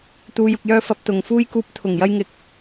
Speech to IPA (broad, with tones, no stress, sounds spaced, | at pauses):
t̪ uː˨˧ j ʊ˨ k̚ j œː˧ f ɐ˨˥ p̚ t̪ ʊ˨ ŋ f uː˧ j k uː˨˥ p̚ t̪ʰ ʊ˨˩ ŋ j ɐ˧ j ŋ ɪ˨ k̚